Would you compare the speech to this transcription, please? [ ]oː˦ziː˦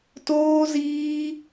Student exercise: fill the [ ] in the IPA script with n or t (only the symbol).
t